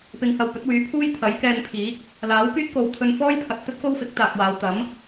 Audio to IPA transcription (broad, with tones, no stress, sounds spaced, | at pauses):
p ɪ˧ ŋ h ɐ˧ w p ɵ˨˥ t̚ w yː˨˥ pʰ uː˥ j t̪ʰ ɐ˨˥ j k ɛː˧ n pʰ iː˨˥ k̚ | l aː˨˥ w k yː˥ t̚ k o˨ w t̪ʰ ɵ˧ n f ɔː˥ j pʰ ɐ˨ t̚ t̪ ɵ˥ t̚ k o˥ w f ɪ˨˥ k̚ t̪ aː˨ k̚ w aː˨˧ w t̪ ɐ˨˥ m